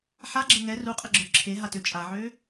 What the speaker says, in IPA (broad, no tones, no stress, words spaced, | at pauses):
ħaɡ͡ǁə ŋɛ ruqʼəɡ͡ǁœ ǁʰeɦatø t͡ʃʼaʕø